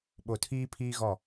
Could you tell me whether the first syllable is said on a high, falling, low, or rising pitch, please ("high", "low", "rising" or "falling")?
low